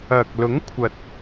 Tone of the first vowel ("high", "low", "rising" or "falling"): low